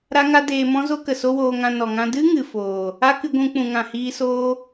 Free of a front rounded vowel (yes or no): yes